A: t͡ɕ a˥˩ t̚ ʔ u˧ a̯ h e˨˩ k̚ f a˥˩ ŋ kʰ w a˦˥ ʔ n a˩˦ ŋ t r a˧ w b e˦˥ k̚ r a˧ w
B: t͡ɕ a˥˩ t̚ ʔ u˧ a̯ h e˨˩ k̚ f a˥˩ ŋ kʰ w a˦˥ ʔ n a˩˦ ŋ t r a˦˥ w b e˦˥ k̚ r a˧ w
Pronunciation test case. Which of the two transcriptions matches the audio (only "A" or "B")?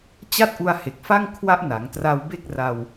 A